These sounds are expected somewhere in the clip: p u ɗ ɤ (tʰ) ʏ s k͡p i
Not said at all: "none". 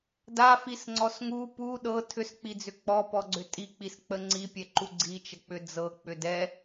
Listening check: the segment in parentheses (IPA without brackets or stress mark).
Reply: tʰ